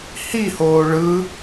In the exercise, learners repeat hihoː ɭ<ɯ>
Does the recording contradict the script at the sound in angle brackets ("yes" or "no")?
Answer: no